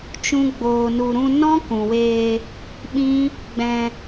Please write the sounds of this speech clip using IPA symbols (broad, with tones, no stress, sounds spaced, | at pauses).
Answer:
t͡ʃ ũ˦ ɡ͡b oː˧ n u˧ ɾ ũ˧ n ɔ̃˦ k ũ˨ w eː˧ | ɓ ĩ˦ | ɡ͡b ɛ̃˧